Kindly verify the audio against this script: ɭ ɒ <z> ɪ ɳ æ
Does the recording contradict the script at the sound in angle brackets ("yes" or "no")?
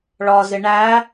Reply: no